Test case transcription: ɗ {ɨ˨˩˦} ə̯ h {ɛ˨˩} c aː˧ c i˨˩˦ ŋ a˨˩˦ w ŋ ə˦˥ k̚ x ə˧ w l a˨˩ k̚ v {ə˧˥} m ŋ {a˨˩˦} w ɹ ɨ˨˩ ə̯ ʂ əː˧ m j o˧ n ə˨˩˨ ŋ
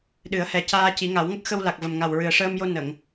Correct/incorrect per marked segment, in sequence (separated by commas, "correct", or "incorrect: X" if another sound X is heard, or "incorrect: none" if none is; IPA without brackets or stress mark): correct, correct, incorrect: ə˨˩, incorrect: a˨˩